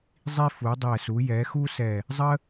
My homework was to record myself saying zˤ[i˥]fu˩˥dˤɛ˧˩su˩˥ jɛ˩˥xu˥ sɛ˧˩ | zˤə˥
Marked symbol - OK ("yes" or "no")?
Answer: yes